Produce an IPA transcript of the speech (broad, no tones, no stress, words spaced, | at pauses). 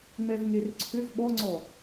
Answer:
ŋ͡mɛvŋerǀʰʏv ɓɔŋ͡ǀɔ